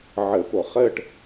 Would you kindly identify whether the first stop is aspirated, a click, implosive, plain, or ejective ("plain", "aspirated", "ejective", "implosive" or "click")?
plain